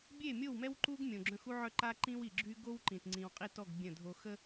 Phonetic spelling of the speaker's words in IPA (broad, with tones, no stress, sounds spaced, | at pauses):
bʲ e˦˨ mʲ o˦˨ w m ɛ˦ w ǃ u˦ ɡ mʲ õ˨ ɡ͡ǁ œ̃˦ x u˦ ʕ œ˦ ǃ a˦ ǃ ĩ˦ w i˨ ɡ͡ǁ y˦ ɡ o˦ w ǃ ĩ˨ t ŋ͡ǀ ĩ˨ w qʼ i˦˨ t ɔ˦˨ ɡ bʲ ə̃˦˨ dʱ o˨ x ə˦